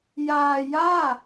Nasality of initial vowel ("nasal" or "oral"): oral